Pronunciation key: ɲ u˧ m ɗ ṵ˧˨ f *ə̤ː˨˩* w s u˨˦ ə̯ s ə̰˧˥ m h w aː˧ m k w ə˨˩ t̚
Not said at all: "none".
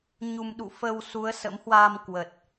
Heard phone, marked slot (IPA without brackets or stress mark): əː˧